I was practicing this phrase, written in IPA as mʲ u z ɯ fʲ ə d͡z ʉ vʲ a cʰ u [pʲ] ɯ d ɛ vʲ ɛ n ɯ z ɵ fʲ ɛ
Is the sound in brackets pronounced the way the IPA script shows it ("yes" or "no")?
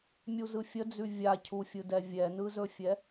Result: no